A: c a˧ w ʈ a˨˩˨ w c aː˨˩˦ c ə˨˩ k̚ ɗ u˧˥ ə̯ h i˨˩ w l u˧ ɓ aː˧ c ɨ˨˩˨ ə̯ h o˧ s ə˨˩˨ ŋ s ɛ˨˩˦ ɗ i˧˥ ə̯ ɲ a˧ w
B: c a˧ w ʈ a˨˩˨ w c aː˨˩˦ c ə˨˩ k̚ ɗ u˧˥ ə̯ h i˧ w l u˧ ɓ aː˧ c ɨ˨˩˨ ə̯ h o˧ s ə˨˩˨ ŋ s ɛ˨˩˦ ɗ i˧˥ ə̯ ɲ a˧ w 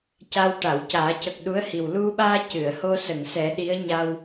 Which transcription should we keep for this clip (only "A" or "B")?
A